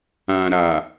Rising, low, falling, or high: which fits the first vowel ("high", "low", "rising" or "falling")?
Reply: low